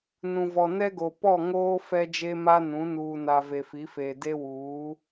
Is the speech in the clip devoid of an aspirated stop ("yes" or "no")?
yes